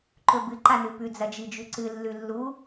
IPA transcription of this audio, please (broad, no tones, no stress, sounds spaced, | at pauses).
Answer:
ǃ ɵ b ɨ ǃ a n ʉ p ʉ d͡z ɐ d͡ʒ i d͡ʒ ʉ ǀ ɨ lː ʉ lː u